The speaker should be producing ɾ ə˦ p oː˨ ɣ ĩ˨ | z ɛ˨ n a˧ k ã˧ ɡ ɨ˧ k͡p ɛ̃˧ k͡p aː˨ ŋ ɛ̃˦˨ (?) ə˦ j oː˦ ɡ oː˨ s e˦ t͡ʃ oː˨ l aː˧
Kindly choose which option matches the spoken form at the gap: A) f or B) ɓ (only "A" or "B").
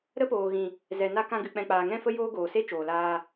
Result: A